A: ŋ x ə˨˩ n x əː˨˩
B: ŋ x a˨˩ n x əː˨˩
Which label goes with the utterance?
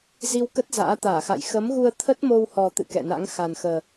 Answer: B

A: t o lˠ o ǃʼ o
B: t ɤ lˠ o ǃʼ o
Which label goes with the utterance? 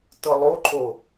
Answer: B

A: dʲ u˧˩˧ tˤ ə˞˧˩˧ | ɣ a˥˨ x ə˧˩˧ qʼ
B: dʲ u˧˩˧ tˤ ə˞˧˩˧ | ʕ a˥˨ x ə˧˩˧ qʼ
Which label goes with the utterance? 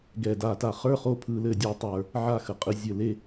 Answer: B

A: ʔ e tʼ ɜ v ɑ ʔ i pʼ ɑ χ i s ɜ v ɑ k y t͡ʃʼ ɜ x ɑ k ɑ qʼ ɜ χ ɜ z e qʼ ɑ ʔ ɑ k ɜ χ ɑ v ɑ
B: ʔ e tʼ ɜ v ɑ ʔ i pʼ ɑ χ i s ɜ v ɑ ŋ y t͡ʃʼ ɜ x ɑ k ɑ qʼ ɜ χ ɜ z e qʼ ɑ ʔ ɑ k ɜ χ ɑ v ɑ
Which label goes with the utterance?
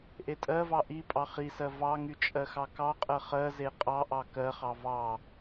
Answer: B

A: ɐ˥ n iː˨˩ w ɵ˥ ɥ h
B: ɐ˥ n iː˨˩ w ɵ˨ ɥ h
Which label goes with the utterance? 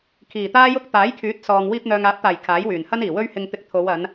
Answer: A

